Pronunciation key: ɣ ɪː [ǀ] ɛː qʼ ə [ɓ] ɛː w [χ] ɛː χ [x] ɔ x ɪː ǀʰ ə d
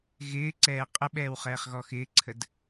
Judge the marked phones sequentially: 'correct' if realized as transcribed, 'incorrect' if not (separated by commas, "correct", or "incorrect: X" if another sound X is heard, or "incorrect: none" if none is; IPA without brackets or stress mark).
correct, correct, correct, incorrect: ɣ